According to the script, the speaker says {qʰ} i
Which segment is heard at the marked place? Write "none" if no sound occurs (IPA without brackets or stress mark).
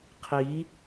qʰ